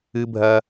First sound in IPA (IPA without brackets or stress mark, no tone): ɨ